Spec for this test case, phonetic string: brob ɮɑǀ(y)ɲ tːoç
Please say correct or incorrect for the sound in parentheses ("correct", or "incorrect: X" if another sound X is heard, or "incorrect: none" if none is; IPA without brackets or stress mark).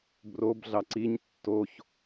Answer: incorrect: i